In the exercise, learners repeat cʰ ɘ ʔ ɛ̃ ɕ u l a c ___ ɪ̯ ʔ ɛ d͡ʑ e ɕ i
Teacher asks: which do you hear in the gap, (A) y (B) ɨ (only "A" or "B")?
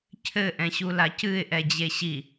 B